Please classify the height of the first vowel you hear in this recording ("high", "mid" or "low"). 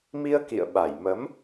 high